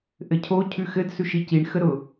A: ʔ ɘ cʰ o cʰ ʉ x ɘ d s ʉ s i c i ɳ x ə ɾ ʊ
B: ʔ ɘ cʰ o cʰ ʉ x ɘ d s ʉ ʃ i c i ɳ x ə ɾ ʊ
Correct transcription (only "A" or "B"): B